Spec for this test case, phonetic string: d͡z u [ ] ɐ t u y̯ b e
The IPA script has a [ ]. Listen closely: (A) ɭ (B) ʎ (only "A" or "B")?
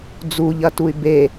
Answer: B